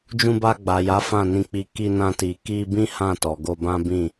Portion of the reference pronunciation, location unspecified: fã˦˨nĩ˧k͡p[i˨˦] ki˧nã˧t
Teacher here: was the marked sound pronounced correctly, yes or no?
no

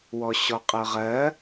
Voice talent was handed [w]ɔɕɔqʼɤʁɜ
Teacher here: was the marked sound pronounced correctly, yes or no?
yes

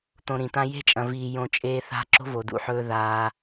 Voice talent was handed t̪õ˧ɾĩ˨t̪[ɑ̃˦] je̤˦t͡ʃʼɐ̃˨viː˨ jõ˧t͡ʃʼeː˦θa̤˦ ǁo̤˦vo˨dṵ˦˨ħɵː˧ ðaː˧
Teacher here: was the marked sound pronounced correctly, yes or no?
no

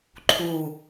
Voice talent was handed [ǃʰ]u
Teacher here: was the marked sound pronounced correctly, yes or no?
yes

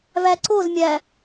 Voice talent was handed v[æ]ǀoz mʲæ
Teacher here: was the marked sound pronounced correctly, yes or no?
yes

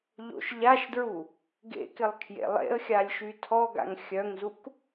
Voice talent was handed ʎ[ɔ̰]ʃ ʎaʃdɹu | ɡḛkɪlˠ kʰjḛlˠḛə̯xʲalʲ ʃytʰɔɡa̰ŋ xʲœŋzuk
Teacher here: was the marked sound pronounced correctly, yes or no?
no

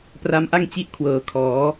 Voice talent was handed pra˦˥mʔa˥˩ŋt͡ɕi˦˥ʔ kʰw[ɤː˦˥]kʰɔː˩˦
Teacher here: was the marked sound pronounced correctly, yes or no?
no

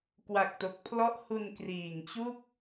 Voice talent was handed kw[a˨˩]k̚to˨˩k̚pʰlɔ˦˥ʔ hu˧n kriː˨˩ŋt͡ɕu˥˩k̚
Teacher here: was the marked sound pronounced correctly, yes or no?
yes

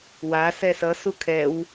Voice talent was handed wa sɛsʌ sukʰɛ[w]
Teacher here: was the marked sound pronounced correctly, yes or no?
yes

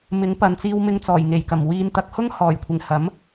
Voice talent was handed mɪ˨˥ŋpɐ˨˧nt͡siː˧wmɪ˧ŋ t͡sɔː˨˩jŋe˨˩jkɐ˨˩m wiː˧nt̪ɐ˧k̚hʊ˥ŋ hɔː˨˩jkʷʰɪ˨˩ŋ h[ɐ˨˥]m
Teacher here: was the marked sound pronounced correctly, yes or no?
yes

